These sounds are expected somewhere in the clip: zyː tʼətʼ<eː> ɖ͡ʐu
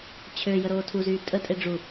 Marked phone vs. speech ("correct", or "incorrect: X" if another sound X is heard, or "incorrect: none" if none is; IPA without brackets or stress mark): incorrect: e